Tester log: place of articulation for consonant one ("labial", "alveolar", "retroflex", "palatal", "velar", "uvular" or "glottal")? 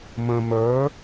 labial